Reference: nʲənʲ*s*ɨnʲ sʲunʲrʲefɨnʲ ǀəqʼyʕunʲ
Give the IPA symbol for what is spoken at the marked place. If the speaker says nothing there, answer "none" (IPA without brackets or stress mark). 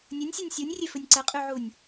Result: sʲ